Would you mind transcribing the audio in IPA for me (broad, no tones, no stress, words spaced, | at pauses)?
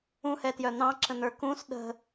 ũhɛtjœ n̪ɑ̃ǁə̃n̪ə˞ kũs ɗə̤